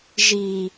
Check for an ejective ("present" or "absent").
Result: absent